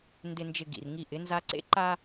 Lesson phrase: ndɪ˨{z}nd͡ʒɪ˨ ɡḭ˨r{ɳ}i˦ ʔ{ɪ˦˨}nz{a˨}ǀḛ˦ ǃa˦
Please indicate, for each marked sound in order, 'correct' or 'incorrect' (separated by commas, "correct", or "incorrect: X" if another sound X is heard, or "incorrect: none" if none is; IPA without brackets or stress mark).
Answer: incorrect: none, incorrect: ŋ, incorrect: ɪ˨˦, incorrect: a˦